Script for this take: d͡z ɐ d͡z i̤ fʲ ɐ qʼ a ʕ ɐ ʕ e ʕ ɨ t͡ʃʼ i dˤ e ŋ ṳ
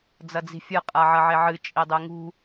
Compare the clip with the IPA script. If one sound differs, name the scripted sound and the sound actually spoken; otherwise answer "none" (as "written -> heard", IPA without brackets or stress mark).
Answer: none